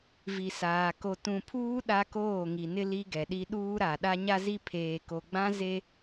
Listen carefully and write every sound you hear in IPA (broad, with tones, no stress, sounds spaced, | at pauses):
v i˨ s aː˨ k o˨ t ũ˨ pʰ uː˦ ɗ a˦ k oː˦˨ ŋ i˨ n ɪ˦ l i˦ ɡ ɛ˨ ɗ i˦ ɗ uː˦ ɾ a˨ ɗ a˦ ɲ a˦ z i˦ pʰ eː˨ k o˨ ɡ͡b ã˦ z e˦